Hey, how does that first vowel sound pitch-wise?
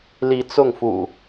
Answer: rising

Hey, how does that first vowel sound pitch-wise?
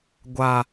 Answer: low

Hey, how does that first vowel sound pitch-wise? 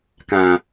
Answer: low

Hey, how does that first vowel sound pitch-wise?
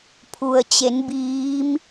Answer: low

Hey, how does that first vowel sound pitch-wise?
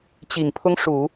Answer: low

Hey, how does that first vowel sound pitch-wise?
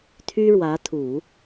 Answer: high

